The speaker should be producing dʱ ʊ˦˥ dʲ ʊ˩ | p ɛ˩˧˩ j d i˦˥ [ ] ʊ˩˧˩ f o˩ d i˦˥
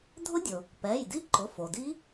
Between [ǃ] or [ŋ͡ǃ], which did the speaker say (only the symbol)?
ǃ